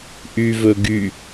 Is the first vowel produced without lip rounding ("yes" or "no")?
no